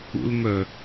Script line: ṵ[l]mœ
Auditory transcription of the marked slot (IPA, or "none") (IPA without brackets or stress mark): l